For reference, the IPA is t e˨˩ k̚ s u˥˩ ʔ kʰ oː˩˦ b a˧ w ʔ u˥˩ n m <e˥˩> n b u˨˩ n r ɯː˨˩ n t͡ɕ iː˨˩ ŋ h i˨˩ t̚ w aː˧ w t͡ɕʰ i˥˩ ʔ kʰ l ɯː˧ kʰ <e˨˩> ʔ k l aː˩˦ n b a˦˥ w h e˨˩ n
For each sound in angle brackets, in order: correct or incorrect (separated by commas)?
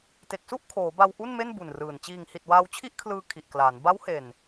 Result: correct, incorrect